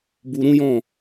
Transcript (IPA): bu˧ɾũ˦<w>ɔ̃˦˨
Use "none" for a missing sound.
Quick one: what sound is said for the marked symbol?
j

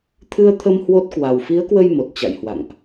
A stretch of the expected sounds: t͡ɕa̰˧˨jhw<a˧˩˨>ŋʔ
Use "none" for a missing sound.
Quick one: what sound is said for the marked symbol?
a̰˧˨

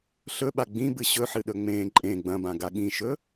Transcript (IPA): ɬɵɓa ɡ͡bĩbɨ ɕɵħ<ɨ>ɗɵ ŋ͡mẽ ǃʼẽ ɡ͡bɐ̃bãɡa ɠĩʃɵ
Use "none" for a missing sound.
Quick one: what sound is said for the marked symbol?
ɨ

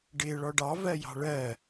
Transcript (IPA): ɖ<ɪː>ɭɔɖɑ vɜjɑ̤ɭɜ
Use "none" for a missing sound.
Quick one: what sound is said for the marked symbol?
ɪː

